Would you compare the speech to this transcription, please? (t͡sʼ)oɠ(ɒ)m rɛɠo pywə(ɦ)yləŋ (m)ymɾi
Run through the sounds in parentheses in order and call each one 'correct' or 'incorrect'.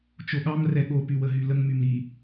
incorrect: t͡ʃ, incorrect: ɑ, correct, correct

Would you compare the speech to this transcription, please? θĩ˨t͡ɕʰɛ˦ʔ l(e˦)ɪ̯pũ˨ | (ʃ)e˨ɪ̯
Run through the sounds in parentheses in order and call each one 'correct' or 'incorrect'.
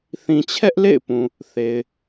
incorrect: ḛ˦˨, incorrect: θ

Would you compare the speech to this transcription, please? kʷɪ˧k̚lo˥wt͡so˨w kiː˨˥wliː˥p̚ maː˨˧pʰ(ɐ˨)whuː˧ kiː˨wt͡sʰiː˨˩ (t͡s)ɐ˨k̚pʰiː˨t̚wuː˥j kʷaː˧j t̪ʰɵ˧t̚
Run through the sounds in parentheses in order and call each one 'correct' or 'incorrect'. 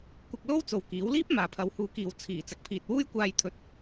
incorrect: ɐ˧, correct

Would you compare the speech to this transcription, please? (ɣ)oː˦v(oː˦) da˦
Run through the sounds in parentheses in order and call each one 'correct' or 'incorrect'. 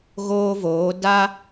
correct, incorrect: oː˨˦

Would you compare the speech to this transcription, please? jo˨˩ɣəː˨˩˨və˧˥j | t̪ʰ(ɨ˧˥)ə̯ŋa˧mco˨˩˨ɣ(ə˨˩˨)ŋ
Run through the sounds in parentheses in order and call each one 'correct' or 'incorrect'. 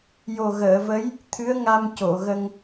correct, incorrect: ə˧

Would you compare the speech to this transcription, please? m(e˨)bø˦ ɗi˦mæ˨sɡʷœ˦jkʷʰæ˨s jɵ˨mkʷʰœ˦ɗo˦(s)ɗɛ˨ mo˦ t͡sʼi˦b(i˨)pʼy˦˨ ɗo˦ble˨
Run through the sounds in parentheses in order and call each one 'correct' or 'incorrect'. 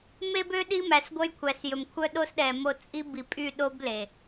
incorrect: e˦, correct, correct

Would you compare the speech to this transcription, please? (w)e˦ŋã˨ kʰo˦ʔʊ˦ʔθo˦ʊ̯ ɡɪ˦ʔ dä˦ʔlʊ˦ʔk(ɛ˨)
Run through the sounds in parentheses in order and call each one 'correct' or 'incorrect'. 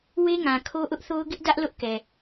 correct, correct

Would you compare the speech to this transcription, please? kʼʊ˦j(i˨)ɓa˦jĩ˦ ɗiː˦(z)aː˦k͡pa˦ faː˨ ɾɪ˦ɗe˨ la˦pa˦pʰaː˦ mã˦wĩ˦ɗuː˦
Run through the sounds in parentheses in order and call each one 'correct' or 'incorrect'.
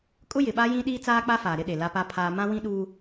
incorrect: ɪ˨, incorrect: t͡s

